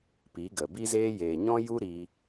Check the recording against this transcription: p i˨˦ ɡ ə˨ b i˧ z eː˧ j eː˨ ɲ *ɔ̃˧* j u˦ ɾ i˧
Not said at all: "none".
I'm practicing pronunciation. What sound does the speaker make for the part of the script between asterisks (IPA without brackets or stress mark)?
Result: ɔ̃˦